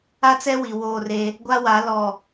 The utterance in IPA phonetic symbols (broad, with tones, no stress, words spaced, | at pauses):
a˦t͡sɛ˦wi˨ woː˦˨re˦ | ɡʷa˦wa˨˦lɔ˨